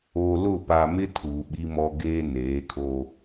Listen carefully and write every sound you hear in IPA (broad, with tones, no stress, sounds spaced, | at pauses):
o˨ l ʊ˦˨ p a˨ m ɪ˦ tʰ uː˨ ɓ i˦ m ɔ˦ ɡ eː˦ n eː˨˦ kʰ o˦